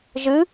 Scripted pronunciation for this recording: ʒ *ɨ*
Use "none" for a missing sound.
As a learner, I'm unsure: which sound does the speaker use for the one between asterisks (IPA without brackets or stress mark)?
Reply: ɨ